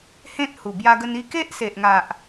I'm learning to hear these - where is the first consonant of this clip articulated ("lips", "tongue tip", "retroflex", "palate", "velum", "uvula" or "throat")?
throat